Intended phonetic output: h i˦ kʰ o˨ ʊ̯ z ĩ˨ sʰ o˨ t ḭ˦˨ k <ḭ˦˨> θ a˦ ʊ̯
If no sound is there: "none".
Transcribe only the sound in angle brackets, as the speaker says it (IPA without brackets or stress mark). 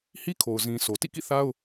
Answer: ḭ˦˨